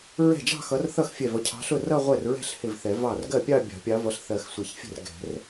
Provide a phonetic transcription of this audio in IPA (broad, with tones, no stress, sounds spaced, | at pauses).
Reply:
ɹ ɛ̤˥˩ d͡ʒ ɑ̤˥˧ x ʌ˨˦ r θ ʌ˥˩ x fʲ ɛ˧˩ v ʌ˨˦ cʰ ɑ̤˨˦ ɬ ʊ˥˩ r ʌ˥˧ ʁʷ ɛ˥˩ r ɹ ɛ̤˥˧ ɬ h ɪ˧˩ v θ ɛ˨˩˦ v ɑ˥˩ r ɡ ɜ˥˩ pʲ ɑ˥˧ bʲ ɑ̤˨˩˦ pʲ ɑ˨˦ v ʌ˨˦ ɬ θ ɜ˨˩˦ x sʷ ɪ˨˩˦ ç fʲ ɛ̤˥˩ r ɡ ɛ̤˨˩˦ r